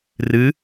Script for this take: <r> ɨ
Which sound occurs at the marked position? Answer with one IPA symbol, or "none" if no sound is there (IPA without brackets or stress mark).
r